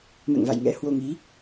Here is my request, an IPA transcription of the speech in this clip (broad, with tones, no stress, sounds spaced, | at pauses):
m ɛ̰˧˨ ŋ v a̰˧˨ j ŋ ɛ̰˧˥ h w o˧ ŋ i˨˦